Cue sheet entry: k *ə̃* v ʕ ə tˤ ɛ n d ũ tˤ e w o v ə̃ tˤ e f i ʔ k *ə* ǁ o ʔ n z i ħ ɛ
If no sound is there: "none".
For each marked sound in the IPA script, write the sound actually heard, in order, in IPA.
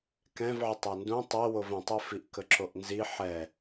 ɛ̃, ə

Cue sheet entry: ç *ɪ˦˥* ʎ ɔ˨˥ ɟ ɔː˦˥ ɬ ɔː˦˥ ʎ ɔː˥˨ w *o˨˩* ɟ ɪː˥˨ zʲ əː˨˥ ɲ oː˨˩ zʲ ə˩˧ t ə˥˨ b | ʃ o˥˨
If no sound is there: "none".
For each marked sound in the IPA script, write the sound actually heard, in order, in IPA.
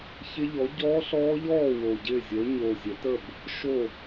ɪ˦˥, o˨˩

